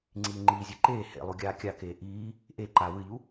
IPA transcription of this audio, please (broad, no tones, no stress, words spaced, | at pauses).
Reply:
ŋ͡ǀiːŋ͡ǃiːzʲe ǃeː hḛlˠu ɡʲaːkʲakeː ʔiː | ʔe ǃa wɨʎu